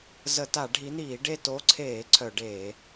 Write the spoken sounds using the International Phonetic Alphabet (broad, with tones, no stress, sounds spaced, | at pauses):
z ə˧˩˧ t a˧˩˧ ɖʱ i˨˦ n̪ iː˧˩˧ ɖ e˦˨ t o˨˦ ǀʰ eː˧˩˧ ǀʰ œ˧˩˧ ɖ eː˧˩˧